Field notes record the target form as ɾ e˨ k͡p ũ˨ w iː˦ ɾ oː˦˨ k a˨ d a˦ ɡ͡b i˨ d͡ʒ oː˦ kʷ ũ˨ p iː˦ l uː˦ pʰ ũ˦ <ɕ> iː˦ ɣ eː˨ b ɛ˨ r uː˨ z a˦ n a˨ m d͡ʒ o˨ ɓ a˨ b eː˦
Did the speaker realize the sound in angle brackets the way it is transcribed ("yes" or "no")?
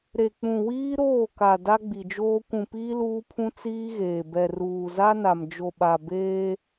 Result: no